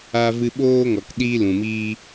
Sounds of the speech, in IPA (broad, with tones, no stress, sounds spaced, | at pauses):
aː˧ v ɨ˧ ɓ oː˦ ŋ ɔ˨ k ɗ iː˦ l ũ˨ m iː˦